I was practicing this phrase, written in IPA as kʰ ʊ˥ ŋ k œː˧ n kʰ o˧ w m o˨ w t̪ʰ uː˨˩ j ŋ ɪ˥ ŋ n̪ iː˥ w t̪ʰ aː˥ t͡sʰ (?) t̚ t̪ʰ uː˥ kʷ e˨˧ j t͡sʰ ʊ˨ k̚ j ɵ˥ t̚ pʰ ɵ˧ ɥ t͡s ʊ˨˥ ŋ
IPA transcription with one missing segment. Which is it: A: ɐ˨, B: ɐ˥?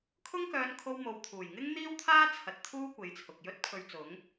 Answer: A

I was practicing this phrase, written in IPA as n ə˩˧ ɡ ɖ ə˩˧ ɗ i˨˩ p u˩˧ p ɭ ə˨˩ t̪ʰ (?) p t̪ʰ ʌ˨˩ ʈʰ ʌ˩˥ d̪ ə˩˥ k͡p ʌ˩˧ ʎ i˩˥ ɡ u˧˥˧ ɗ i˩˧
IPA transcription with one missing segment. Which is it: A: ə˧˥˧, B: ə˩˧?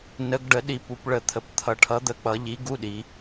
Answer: B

